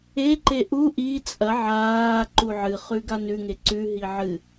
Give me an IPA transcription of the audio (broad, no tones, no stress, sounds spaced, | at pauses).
e ǃ e ʔ u ʔ i t͡sʼ ɐ ʕ aː ǃ u ʕ ɨ χ ʉ ɡ a n ʉ ŋ e ǀ ʉ ɦ i ʕ ɨ